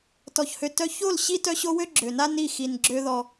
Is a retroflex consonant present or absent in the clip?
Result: absent